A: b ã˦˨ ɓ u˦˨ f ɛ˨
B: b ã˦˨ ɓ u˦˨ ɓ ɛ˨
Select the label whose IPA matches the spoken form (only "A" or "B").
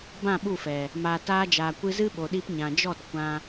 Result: A